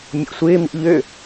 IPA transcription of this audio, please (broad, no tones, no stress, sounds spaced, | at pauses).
mʲ ṵ sʷ ɪː m ḭ ʎ ø